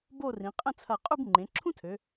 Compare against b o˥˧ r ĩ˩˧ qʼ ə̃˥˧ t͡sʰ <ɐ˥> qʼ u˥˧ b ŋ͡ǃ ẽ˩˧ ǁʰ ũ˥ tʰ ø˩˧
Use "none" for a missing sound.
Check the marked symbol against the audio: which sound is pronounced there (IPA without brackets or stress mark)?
ɐ˧˩